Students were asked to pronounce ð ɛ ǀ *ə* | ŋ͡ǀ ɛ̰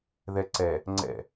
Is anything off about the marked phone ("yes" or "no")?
yes